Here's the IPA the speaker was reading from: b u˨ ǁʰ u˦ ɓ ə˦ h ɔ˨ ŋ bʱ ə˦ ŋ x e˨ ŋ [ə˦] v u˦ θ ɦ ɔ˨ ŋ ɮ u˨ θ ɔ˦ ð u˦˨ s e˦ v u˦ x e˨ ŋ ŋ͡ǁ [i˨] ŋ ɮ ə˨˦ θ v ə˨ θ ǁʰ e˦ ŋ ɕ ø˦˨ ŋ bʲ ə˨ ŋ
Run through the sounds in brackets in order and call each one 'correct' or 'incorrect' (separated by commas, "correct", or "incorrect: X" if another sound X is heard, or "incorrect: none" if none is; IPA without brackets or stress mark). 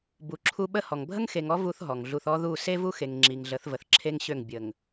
incorrect: ɔ˦, correct